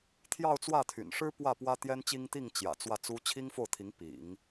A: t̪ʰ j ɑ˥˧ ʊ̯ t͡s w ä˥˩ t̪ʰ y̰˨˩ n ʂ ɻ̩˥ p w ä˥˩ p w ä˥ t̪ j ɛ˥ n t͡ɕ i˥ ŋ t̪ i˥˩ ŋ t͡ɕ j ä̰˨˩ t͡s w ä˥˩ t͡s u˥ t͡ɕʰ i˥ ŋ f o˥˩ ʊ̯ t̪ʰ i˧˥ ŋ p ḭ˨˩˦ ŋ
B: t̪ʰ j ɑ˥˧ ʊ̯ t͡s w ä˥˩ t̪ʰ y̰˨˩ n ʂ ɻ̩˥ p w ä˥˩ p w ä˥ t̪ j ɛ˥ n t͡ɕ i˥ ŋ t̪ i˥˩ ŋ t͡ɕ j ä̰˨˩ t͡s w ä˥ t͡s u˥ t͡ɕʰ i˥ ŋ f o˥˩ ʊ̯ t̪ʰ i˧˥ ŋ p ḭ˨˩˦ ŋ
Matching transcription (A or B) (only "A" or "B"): A